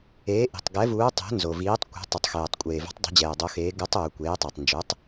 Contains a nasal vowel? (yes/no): no